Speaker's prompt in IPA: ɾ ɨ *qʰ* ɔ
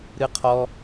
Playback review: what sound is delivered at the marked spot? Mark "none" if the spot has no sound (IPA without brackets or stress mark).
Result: qʰ